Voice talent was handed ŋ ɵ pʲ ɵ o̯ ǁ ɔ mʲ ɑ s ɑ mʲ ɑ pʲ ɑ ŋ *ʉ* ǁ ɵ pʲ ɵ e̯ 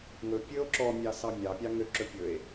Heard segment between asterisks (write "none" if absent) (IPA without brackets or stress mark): ø